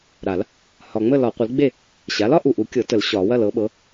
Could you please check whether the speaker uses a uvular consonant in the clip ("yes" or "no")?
yes